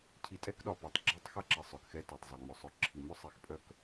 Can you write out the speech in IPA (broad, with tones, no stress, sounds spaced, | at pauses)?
cʰ i˨ tʼ ɛ˦ k ɗ ɒ˨ p ɔ˨ tˤ ɡ͡ǁ i˦ tˤ x a˦ ǁ i˨ sˤ œ˨ k x ɛ˦ t ɒ˨ tˤ zˤ œ˨ ŋ͡m œ˨ sˤ œ˨ ǁʰ i˨ m œ˦ sˤ i˨ x pʼ œ˦ k